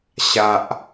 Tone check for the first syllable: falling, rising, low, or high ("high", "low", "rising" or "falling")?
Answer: low